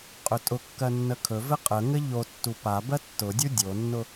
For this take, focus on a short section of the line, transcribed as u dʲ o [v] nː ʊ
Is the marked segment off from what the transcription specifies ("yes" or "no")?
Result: yes